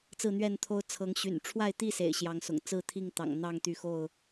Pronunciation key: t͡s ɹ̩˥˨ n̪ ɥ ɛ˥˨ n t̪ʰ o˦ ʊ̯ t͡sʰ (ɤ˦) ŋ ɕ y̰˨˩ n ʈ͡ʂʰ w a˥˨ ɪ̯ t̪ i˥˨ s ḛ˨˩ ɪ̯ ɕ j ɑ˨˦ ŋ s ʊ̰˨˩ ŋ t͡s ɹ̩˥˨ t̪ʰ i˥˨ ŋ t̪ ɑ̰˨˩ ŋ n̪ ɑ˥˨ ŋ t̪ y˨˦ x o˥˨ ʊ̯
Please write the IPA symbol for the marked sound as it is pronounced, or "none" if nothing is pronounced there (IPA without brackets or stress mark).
ɤ˨˦